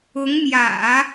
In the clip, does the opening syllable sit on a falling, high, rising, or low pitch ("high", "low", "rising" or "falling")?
rising